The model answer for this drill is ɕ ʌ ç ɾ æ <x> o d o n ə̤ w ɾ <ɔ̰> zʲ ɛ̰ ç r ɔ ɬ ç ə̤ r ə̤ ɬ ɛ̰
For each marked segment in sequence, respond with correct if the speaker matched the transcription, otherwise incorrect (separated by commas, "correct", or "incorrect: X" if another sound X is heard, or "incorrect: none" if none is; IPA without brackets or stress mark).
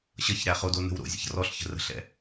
incorrect: χ, incorrect: o̰